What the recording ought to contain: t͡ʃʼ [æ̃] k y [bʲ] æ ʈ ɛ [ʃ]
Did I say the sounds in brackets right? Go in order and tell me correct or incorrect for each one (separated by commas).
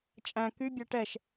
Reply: correct, correct, correct